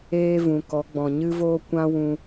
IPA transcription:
eː˦ v ũ˨ k ɔ˨˦ ɡ͡b ɔ̃˨ ɲ ɨ˦ v oː˦ kʷ ã˦ w ũ˧

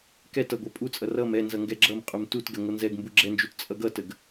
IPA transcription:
k ɛ t ʌ ɡʷ ɛ pʼ u t͡sʼ ʌ r ʌ m ɛ n z ʌ ŋ ɡ ɛ ɡ͡ǁ ʌ m qʼ u m t u t ɡ ɛ ŋʷ ʌ n z ɛ ɡ m b u ɡ͡ǁ ɛ n d͡ʒ u t t͡sʼ ʌ ɡ ʌ t ə ɡ

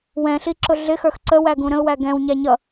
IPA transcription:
w ɛ̃ ɬ i ǁ ʊ ɮ ɪ x ə˞ x ǀ ə w æ ɡ ũ ɾ ə̃ ʊ̯ w æ ɡ ɛ̃ w ɲ æ ɲ ʌ

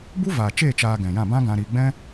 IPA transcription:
b u˦ v aː˨ t͡ʃ eː˦˨ t͡ʃ aː˧ ɡ ɛ̃˨ j ã˦˨ b ã˦ ɡ ã˧ ɾ iː˧ ɡ͡b ɛ̃˦

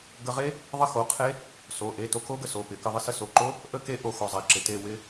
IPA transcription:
ɡ ə˧ ʁ e˦˥ | ðˤ ə˦˥ x o˩˧˩ qʰ e˦˥ | s o˩˧˩ ʔ e˩˧˩ t o˧ k o˦˥ ɡ ə˧ s o˩˧˩ p ɪ˨˩˦ k ə˧ ðˤ ɪ˧ s ə˧ s o˩˧˩ ǃ o˦˥ | ʔ ə˥˧ k e˦˥ ʔ o˧ x o˩˧˩ zˤ e˨˩˦ ǁ ɪ˩˧˩ t e˥˧ w ɪ˦˥

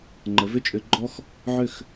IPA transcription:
ŋ͡ǃ ə˩˧ v ʏ˥˩ t͡ʃʼ ʏ˧˩˧ ɡ͡ǃ ɔ˦ x | ʕ ʏ˥˩ x

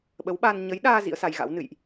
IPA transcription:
ɓ ə˨˦ w ɓ aː˧ n ɲ ə˨˦ j ɗ aː˧ z ḭ˧˥ ə̯ s a˧ j ɣ a̰˧˥ w n ɨ̰˧˨ j ʔ

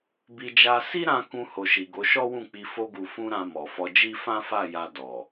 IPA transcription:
b i˧ d͡ʒ a˧ s i˦ ɾ ã˧ k ũ˧ h o˨ ʃ i˨ ɡ o˨˦ ʃ ɔ˦ w ũ˦˨ k͡p i˧ f o˧ ɡ u˨ f ũ˧ ɾ ã˨ m ɔ˨ f ɔ˧ d͡ʒ i˦ f ã˦ f a˦˨ j a˧ d ɔ˨

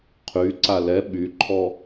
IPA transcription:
qʰ y ǀ a l ɛ ɓ y ǃʰ ɔ

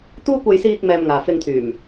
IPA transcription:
t̪ uː˥ kʷ ɐ˧ j s iː˧ k̚ m ɛː˨ m ŋ aː˨ f ɪ˧ ŋ t̪ʰ yː˨˩ m

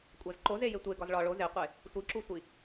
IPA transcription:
kʷʼ æ z ǃ o z e j e tʷ e ɡ ɒ z ɭ ɒ ɭ o z e qʷ e | sʷ i ǁ u sʷ i

